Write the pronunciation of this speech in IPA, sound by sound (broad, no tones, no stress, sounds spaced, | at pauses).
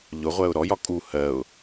ʎ ʊ ʁʷ ɜ ʊ̯ ɾ ɔ j ɒ kʼ u h ɜ ʊ̯